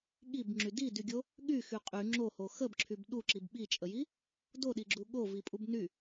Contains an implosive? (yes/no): yes